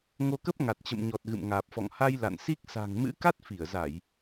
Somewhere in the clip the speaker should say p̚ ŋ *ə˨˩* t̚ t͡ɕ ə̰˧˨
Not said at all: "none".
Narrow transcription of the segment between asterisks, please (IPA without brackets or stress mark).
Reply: a˨˩